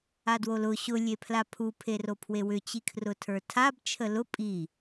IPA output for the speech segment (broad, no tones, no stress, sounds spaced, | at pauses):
a d w o l ʊ ɕ ʊ lʲ e pʰ l a pʰ u pʰ e r o pʰ w e w ʏ t͡ɕ i kʰ r ʊ tʰ ə˞ tʰ a b t͡ʃʰ ə l ʊ pʼ i